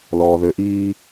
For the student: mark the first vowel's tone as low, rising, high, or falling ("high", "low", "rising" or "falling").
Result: low